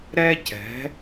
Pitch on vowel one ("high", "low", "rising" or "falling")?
high